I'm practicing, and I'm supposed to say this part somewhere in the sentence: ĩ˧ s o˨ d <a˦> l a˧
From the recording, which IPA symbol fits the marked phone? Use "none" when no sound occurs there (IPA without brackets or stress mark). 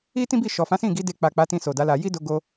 a˨˦